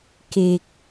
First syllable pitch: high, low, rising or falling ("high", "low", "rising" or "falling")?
low